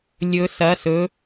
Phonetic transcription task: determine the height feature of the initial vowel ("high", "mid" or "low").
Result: mid